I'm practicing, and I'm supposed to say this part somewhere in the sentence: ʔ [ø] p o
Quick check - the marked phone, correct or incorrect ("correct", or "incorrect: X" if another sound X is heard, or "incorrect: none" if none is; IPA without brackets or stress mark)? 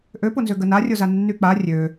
correct